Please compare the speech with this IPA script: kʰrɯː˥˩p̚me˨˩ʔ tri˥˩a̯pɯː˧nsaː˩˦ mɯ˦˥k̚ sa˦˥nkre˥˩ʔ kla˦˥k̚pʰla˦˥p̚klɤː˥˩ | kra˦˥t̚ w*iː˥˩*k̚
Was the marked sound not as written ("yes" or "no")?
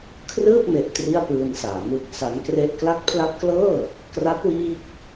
no